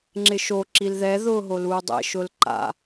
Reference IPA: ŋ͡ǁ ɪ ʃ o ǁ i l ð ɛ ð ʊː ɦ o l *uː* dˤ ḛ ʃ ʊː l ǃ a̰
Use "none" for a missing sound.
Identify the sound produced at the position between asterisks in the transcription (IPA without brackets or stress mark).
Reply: uː